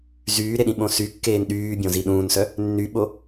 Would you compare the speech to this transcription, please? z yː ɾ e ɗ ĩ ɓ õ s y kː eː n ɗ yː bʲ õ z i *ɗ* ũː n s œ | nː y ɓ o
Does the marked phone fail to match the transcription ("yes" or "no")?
no